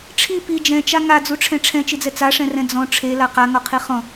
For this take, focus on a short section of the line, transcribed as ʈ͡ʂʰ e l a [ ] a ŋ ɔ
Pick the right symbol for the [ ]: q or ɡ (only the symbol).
q